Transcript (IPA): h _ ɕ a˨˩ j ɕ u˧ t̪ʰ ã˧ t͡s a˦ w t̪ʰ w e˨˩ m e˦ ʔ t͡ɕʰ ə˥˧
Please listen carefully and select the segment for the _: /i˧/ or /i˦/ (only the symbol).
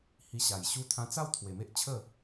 i˧